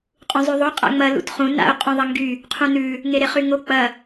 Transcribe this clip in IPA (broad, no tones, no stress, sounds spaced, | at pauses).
qʼ ũ zˤ ʉ ðˤ o qʼ a̰ ŋ͡m ɐ l ṵ t χ ũ n a̰ ʊ̯ qʼ ũ ðˤ ɐ ŋ ɡ y | qʰ ũ n ʉ | ŋ e ɾ e χ y ŋ o k͡p ɐ